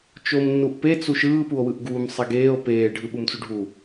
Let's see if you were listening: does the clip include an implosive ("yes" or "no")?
yes